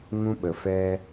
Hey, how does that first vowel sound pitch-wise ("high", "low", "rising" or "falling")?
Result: high